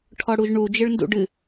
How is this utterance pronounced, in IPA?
ʈʰɔɽuʒɳu d͡ʒɨɭndṵɖɨ

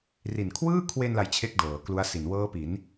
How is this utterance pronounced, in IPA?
ri˨˩nkʰwɯː˥˩kʰwe˧n la˧jt͡ɕʰe˦˥k̚ dɤː˩˦klu˦˥a̯si˨˩n wɤː˦˥pi˩˦n

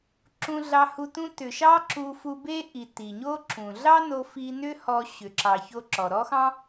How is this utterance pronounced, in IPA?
ǁũ˧ɮɑ˧hu˧ tũ˧ tʏ˩ʃɑ˥ ǁu˧fu˧be˥ ʔi˩ ti˩ɲo˥ǁũ˩ ɮɑ˥no˧fi˧ nʏ˥hɔ˧ ɕʏ˩ǁɑ˩ço˧ ǁɔ˩ɾɔ˥xɑ̃˥

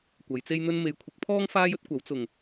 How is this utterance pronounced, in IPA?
kʷɐ˨˧jt͡se˥jn̪ɵ˥n me˨˧jkʷʰɪ˨˥k̚pʰɔː˥ŋ faː˥jɵ˥t̚kʷɐ˨˥w t͡sʊ˨˩ŋ

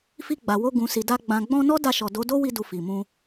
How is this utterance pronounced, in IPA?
fi˧ ɡ͡ba˨wo˧ ɡũ˨si˨da˧ ɡ͡bã˨ɡ͡bɔ̃˧ nɔ˦da˧ʃɔ˨ do˨˦do˦wi˧du˨ fi˨mũ˧

